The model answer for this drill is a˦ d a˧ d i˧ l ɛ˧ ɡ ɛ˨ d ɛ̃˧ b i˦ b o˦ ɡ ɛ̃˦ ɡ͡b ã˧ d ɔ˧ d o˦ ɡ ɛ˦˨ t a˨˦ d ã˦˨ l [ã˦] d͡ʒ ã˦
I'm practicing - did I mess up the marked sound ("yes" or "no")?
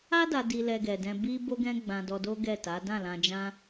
yes